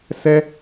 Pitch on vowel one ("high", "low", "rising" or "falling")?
high